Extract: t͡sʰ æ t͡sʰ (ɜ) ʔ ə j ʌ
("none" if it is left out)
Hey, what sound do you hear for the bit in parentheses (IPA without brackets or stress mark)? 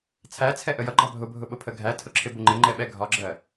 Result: ɛ